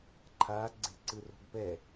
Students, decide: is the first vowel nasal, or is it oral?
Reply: oral